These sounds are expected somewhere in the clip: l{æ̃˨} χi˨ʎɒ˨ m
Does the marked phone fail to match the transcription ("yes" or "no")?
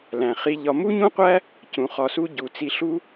no